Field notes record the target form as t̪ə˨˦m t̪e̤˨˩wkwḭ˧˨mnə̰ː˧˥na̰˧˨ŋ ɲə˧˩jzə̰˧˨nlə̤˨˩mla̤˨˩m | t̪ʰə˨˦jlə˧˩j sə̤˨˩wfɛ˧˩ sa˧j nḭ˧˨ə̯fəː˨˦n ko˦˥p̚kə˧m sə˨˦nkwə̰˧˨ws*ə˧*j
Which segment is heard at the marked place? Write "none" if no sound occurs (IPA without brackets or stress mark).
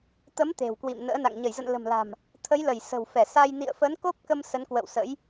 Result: ə̰˧˥